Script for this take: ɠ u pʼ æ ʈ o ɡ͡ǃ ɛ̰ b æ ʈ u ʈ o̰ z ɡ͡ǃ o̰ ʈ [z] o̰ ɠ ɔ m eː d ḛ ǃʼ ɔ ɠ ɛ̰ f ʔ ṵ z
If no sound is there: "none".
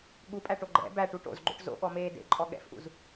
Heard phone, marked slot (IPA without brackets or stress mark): z